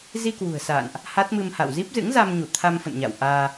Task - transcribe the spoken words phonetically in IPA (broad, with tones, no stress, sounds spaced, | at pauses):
z i˧ k w ṳ˨˩ ə̯ s a̰ː˧˨ n ʔ | h a˦˥ t̚ m ɨ˧ m h a̰˧˨ w z i˦˥ p̚ z ɨ̰˧˥ ŋ z a˧ m ɲ u˧˩ t̪ʰ a˧ m f ə̰˧˨ n ɲ a̰˧˨ w ʔ aː˧